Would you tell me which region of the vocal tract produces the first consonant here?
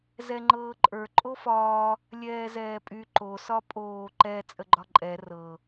tongue tip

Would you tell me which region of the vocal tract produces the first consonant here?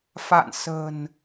lips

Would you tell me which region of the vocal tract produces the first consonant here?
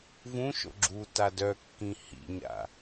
lips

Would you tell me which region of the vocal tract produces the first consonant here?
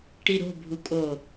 retroflex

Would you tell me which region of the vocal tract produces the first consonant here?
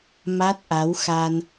lips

